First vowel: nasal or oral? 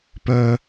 oral